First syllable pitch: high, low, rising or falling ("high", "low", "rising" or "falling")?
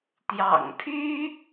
low